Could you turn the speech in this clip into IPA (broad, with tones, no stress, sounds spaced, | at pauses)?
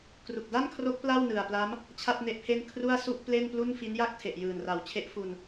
k r u˨˩ k̚ d a˥˩ n kʰ r o˦˥ k̚ p l a˥˩ w n ɯ˨˩ a̯ p l a˦˥ m | t͡ɕʰ a˥˩ t̚ n e˦˥ ʔ pʰ e˥˩ n kʰ r u˥˩ a̯ s u˥˩ ʔ p l e˥˩ n p l u˥˩ n f i˦˥ n j a˥˩ k̚ tʰ e˨˩ ʔ j ɯː˨˩ n r a˨˩ w t͡ɕʰ e˦˥ ʔ f u˧ n